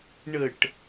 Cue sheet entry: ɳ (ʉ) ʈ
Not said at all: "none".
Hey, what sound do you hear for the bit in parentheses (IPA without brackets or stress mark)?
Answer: ə